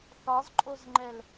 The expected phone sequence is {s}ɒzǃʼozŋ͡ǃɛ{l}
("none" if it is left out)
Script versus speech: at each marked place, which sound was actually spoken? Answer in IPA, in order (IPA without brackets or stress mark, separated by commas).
θ, l